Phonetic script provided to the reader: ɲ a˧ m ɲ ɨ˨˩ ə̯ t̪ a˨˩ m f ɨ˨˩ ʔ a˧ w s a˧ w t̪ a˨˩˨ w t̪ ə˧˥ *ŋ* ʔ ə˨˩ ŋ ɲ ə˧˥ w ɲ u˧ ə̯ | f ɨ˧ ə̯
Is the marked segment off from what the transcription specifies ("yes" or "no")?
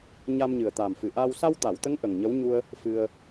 no